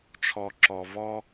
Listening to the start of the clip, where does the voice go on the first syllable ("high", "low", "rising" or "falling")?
low